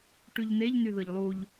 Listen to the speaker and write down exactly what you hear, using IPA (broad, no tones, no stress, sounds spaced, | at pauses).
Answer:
ʈ y ʎ n e ʎ n y ð ɯ ʎ lˠ u ʎ